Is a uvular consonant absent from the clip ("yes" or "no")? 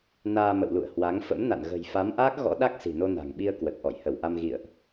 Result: yes